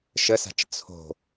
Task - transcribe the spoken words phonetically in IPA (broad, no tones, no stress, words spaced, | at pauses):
ʃəsa̤t͡ʃ t͡sʰo̤